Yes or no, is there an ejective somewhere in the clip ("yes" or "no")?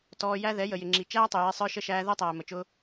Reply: no